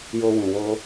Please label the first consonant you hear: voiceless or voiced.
voiced